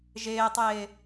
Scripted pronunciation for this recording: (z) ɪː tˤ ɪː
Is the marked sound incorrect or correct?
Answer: incorrect